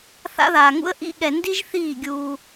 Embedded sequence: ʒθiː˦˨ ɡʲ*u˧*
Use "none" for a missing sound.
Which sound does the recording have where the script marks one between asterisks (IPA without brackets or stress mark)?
uː˧